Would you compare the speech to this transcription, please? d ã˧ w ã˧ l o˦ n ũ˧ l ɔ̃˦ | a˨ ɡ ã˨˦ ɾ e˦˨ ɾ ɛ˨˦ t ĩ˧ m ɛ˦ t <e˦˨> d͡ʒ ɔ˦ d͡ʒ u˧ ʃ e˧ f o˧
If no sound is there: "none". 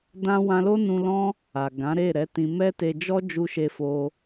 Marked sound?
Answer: e˧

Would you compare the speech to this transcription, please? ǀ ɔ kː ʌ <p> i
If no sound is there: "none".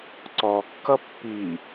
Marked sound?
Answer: pː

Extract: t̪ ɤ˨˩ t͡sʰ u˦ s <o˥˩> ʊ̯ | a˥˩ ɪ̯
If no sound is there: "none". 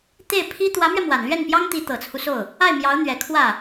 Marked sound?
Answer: o˥˩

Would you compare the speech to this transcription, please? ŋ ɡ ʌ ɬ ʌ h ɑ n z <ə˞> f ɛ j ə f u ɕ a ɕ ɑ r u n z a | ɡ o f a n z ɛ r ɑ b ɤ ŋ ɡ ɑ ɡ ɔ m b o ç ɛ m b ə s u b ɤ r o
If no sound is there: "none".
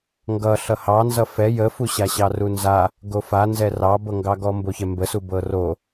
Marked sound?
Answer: ʌ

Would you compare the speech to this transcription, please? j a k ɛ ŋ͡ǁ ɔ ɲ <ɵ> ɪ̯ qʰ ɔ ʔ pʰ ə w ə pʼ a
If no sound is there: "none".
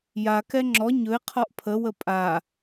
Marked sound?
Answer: ɵ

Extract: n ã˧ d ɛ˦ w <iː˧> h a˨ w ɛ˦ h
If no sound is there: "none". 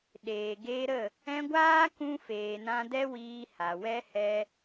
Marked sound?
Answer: iː˧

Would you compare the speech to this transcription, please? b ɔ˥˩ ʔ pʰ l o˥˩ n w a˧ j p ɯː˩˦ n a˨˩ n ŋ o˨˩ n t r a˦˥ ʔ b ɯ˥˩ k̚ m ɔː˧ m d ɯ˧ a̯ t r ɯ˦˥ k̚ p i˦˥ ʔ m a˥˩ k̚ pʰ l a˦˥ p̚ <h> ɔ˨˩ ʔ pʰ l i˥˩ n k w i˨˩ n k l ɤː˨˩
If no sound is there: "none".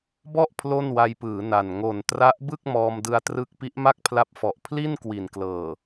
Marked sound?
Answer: f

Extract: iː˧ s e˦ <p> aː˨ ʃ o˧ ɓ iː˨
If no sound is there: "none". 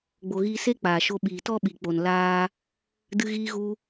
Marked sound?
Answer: k͡p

